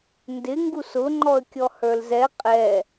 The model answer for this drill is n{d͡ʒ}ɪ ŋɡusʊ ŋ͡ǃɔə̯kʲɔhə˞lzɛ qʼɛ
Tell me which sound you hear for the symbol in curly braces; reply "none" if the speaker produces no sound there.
d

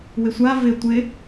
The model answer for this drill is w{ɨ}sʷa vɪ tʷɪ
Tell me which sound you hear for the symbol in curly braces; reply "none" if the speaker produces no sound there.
ɪ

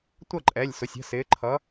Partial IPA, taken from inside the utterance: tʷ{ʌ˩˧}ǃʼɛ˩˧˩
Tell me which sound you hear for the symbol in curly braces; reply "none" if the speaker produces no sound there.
ʌ˥˩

